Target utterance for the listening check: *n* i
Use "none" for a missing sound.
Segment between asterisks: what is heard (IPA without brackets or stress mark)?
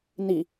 n